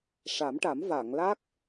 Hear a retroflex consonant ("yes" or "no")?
yes